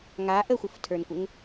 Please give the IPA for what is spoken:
ŋ a ʔ ə xʷ ə f tʰ ə˞ n kʷ ɘ ŋ

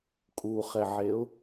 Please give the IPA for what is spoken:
kʼ u χ ɛ ʕ e ʊ̯

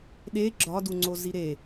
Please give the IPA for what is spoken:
ɗ e ɡ͡ǁ ɒ d u ŋ͡ǀ o z i ɾ e

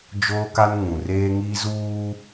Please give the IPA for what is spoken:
d͡ʒ oː˦ k a˦ n ŋ ũ˨ r eː˦ ŋ i˦ z uː˦

